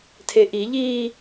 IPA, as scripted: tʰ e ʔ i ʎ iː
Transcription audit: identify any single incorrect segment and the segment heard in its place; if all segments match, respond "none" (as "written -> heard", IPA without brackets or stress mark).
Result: none